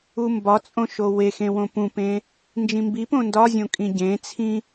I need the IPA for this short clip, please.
u m b ɒ t͡sʼ õ ʃ o w e x ẽ w õ p ũ p ẽ | n d͡ʒ ĩ m b i p õ n d ɒ zʲ õ kʼ ĩ ɟ ẽ t͡sʰ ĩ

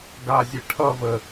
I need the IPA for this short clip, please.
ɡ a zʲ e ʈʰ ʌ v ə

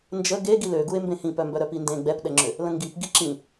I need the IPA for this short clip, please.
n d͡ʒ ə ɡ e ɡ i l ø ɡ u e̯ m b ẽ h ĩ p œ m b œ ɾ œ p i n d ẽ ɡ͡b ɛ p ɗ ɛ ŋ͡ǁ ø | l ə̃ ŋ ɡ i p ɡ i ǁ ĩ

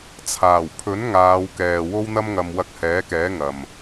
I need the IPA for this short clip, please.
t͡sʰ aː˨˩ w pʰ ɵ˨˥ n ŋ aː˨˧ w k ɛː˨ w o˥ w n̪ ɐ˥ m ŋ ɐ˧ m w ɐ˧ k̚ h ɛː˨˥ k ɛː˨˥ ŋ ɐ˨ m

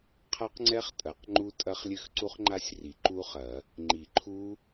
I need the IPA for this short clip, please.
qʰ a˦˥ q ŋ͡ǀ ɛ˦˥ χ tʼ ɐ˨˩˦ q ŋ͡ǃ u˦˥ tʼ ɐ˦˥ χ lʲ ɘ˦˥ x ǀ u˦˥ χ ŋ͡ǃ a˦˥ sʲ r i˨˩˦ ǃ u˦˥ χ ɐ˨˩˦ | ŋ͡ǃ i˨˩˦ ǃʰ u˦˥

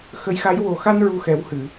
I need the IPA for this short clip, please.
x ə˧˥ j x a˧˥ j w o˨˩ x a˧ n ɹ u˧ x ɛ˨˩˦ w h ɨ˨˩˨

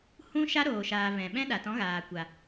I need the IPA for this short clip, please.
h ũ˦ ʃ a˦ ɾ oː˨ ʃ aː˨ v ɛ̃˨ ɓ ɛ̃˦ ɗ a˨ t ɔ̃˨˦ ɣ aː˨ kʷ a˨

